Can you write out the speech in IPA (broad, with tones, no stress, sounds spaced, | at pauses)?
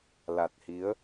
l a˨˩ t̚ h i˨˦ ə̯